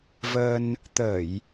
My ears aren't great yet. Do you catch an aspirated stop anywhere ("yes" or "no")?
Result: no